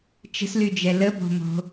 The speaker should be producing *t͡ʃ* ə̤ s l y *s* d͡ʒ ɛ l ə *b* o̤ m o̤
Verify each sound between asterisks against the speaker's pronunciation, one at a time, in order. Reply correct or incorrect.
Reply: correct, incorrect: none, correct

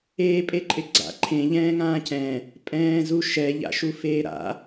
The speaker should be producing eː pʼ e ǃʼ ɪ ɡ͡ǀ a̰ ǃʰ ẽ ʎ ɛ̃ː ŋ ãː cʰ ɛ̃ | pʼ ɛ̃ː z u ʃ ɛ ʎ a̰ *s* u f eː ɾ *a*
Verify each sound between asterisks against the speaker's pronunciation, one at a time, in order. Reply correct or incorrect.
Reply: incorrect: ʃ, incorrect: a̰

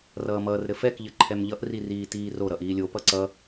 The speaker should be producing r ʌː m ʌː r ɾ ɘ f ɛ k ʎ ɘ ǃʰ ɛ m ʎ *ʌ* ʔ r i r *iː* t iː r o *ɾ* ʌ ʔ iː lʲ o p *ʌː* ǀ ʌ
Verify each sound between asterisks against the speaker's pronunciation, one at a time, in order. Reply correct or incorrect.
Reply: correct, correct, correct, incorrect: ʌ

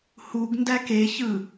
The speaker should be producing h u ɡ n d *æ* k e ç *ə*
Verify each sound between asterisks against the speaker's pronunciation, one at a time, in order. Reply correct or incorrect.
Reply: correct, incorrect: ɯ

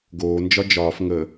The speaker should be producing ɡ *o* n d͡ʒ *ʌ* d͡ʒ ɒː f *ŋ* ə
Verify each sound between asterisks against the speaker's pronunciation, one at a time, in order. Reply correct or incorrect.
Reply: incorrect: oː, incorrect: ɒ, correct

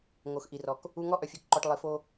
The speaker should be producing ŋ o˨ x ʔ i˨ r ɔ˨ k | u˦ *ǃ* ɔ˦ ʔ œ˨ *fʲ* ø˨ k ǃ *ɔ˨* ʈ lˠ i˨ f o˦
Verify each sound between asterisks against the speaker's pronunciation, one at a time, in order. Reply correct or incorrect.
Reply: incorrect: ŋ, correct, correct

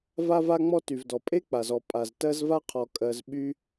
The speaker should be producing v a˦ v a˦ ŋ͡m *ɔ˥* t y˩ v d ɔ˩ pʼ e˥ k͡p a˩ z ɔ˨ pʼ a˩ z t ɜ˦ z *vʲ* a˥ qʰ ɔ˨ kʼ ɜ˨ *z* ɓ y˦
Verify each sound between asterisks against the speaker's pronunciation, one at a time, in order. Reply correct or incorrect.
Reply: incorrect: ɔ˦, incorrect: v, correct

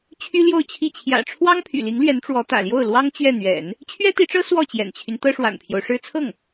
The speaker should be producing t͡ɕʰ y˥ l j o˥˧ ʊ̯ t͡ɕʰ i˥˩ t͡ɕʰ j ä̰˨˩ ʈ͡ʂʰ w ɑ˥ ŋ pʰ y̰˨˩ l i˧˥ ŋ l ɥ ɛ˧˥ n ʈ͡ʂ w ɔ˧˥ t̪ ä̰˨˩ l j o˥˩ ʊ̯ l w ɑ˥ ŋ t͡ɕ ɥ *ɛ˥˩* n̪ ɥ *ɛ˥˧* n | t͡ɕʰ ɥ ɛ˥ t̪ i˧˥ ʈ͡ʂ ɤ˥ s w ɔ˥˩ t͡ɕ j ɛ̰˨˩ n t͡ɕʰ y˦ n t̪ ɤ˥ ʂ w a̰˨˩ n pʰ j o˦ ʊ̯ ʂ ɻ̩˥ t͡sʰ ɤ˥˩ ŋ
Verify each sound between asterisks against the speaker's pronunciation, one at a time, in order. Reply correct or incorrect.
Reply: correct, incorrect: ɛ̰˨˩˦

